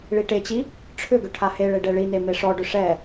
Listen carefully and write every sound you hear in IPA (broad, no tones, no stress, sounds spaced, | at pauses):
ɭ i ʈ e t͡ɕ i | ʈ͡ʂʰ ʏ ɡ ʏ ʈʰ a h e ɭ e ɖ ɛ ɭ i n e m e ʂ ɔ ɖ ʏ ʂ ɛ